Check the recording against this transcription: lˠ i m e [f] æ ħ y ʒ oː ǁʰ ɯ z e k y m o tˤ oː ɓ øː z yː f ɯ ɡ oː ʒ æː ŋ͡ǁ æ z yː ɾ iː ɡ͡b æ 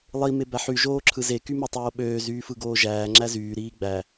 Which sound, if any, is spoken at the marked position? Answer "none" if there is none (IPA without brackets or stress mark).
b